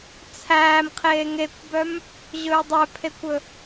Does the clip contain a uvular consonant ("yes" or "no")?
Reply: yes